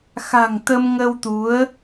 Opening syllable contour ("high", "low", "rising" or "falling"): low